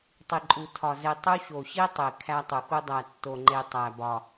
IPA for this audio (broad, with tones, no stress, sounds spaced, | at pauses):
tˤ i˨ ǃʼ u˨ tʰ ɒ˨ z e˨ tˤ u˦ ɕ o˨ ɕ i˦ tˤ e˨ kʰ æ˦ tˤ u˨ x u˦ dˤ æ˨ tː o˨ ŋ͡ǃ e˨ tˤ æ˨ b ɒ˨